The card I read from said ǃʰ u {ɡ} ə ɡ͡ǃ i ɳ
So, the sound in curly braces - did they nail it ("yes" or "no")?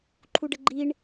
no